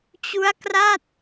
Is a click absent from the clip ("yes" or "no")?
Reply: yes